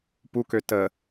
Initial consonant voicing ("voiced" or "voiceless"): voiceless